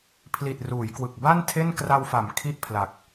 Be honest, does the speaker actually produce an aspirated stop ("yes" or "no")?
yes